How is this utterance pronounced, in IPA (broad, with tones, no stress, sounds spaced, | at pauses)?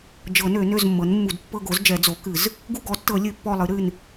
d͡ʒ ɤ˨˩˦ n ø˨˩˦ n ø˦˨ z mː ɤ˩˥ n mː u˨˩˦ d pː ɤ˦˨ ɡ o˩˥ z d͡ʒ ɛ˨˩˦ d͡z o˩˥ k ɨ˨˩˦ z | ɡ u˦˨ ɡ ɔ˩˥ tː ɤ˨˩˦ lʲ ɨ˨˩˦ pː ɔ˦˨ lˠ ɨ˩˥ ɾ ɨ˦˨ n